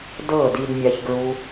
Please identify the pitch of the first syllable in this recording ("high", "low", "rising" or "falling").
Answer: falling